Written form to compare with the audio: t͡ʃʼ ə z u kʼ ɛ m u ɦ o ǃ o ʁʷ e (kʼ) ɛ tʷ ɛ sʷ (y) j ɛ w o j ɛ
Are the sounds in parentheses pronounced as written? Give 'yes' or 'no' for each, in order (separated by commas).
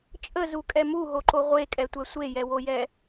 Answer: yes, no